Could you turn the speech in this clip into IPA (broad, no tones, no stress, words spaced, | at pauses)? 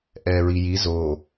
ʔɛːɹiji zo